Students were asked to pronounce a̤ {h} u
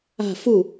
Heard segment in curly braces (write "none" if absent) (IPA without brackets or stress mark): f